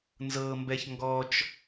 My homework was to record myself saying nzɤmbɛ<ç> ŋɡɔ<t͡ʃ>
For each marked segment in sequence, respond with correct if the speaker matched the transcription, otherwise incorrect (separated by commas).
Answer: correct, correct